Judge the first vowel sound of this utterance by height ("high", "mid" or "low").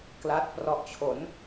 low